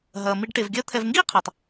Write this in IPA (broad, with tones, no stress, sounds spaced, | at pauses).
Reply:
ɦ ɐː˩ m i˨ ɖ ʈ e˩ v ɡʲ ɐː˦ t̪ʰ ɛ˨ v ŋ ɡ iː˥ qʰ ɐː˩ tˤ